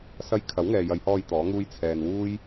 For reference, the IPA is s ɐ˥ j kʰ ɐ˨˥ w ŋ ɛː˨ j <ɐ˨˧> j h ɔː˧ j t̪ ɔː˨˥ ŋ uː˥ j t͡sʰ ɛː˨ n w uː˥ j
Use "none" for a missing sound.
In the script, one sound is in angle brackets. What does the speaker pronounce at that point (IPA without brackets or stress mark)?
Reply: ɐ˨˧